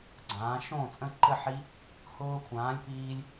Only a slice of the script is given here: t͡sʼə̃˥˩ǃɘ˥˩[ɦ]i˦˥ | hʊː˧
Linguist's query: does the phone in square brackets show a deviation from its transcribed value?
yes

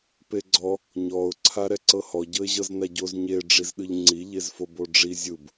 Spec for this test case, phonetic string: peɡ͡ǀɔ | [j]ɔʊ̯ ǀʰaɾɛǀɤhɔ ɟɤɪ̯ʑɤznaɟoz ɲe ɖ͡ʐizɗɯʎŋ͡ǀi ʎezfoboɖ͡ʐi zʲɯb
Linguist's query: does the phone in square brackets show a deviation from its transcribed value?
yes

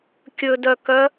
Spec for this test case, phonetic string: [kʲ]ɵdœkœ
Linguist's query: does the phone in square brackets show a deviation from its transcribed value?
no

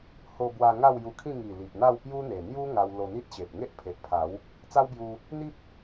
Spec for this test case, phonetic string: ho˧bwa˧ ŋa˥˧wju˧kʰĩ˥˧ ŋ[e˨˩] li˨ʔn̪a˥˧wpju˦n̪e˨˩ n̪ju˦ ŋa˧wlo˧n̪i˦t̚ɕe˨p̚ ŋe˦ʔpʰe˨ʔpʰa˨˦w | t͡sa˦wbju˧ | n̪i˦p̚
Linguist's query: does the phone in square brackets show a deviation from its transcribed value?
yes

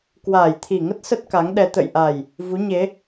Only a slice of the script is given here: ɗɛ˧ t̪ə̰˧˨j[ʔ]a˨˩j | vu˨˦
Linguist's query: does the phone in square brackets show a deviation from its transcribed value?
no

